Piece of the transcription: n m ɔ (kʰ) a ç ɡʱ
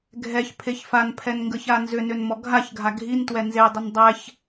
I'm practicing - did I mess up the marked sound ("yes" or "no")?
yes